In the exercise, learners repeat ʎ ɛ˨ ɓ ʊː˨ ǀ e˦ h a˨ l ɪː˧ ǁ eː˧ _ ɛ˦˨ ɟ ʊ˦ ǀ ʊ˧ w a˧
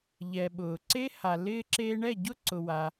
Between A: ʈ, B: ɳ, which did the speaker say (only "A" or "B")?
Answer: B